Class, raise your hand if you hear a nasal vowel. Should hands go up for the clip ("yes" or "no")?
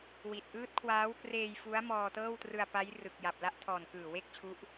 no